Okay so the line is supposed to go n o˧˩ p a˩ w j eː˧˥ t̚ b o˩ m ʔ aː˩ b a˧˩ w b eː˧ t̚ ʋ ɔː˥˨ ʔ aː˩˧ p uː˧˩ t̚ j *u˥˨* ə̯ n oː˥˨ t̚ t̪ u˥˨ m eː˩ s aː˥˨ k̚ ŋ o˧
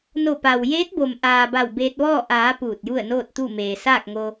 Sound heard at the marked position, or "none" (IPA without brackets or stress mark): u˥˨